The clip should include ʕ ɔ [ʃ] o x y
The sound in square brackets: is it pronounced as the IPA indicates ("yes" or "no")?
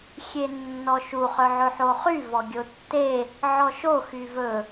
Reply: yes